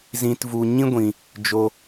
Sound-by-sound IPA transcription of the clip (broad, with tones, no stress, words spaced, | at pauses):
zĩ˦tvu˦ ɲĩ˦ɡʷĩ˧ | d͡ʒo˦